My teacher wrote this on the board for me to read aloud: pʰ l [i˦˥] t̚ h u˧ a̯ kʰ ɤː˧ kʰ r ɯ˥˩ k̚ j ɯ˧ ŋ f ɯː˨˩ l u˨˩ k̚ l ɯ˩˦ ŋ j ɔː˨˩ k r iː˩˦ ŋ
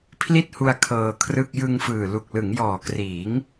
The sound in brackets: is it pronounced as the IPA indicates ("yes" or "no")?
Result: no